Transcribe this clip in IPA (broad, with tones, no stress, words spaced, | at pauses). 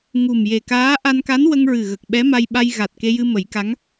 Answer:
ŋu˨˩m je˨˩kaː˧˥ ʔa˧nka˧˥nwə˧ŋɹɨ˨˩ ɣə˨˩k̚ɓɛ˧˥ma˧jɓa˧j ɣa˨˩t̚ke˧jɨ˧ mə˨˩˦jka˧˥ŋ